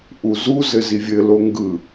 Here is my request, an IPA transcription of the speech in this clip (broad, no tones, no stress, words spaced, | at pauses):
ʔuzu zɘzivʲɘ loŋɡɯ